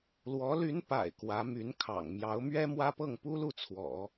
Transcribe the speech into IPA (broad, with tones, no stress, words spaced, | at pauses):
lwɔ˧˥ly˧˥npa̰˨˩ɪ̯ kwä˧˥my˧˥nkʰɑ̰˨˩ŋ mjɑ˧˥ʊ̯mɥɛ˥mwä˥pɤ˥˩ŋ pu˥lu˥˩t͡sʰwɔ̰˨˩˦